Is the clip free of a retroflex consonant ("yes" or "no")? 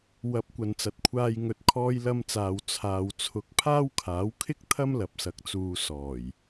yes